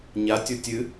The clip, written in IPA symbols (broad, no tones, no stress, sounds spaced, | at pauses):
ɲ a tʲ o tʲ ɨ